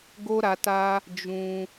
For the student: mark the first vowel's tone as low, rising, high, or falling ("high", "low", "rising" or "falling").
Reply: high